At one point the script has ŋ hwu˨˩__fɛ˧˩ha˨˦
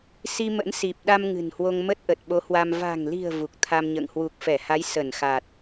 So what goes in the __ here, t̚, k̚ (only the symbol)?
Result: k̚